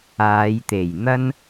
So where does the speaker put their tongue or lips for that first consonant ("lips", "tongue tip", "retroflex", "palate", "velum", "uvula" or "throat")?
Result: palate